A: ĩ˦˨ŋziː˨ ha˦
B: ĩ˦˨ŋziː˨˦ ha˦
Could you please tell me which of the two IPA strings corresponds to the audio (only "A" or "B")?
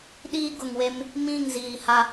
A